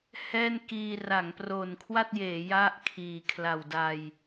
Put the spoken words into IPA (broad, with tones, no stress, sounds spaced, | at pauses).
h ɛː˥˩ n k iː˧ r a˩˦ ŋ p r o˨˩ n kʰ w a˥˩ t̚ j eː˩˦ j a˥˩ ʔ kʰ iː˨˩ kʰ l a˨˩ w d a˧ j